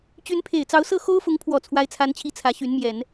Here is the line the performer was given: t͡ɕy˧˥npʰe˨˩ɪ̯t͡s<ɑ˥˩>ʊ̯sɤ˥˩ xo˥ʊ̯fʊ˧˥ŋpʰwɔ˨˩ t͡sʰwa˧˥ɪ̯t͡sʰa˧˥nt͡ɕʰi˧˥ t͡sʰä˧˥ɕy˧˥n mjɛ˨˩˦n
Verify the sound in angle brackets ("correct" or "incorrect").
incorrect